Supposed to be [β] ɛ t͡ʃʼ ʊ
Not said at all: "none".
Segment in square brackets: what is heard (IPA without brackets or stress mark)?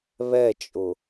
β